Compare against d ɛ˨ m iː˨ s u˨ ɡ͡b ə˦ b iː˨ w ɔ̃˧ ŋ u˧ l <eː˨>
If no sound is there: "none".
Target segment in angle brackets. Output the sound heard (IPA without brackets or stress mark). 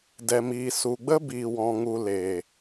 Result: eː˨